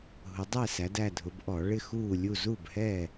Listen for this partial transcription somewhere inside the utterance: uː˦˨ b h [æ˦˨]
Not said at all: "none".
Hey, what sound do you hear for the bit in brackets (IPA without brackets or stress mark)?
ɛ˦˨